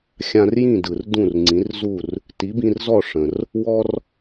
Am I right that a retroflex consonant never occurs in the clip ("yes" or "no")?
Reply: no